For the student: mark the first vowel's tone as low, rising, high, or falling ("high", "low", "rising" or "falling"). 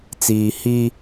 low